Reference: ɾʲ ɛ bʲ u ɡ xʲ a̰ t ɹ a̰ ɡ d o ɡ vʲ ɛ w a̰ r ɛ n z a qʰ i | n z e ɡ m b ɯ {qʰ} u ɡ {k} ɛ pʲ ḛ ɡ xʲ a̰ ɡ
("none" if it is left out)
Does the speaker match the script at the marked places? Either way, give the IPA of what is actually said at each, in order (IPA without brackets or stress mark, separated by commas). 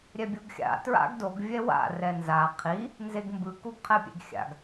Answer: k, qʰ